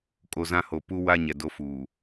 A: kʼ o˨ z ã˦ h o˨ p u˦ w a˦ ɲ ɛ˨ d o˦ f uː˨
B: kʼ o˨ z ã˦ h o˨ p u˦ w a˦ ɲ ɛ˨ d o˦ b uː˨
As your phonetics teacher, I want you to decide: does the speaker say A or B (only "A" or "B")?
A